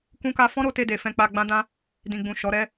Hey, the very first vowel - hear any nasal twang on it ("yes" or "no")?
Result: yes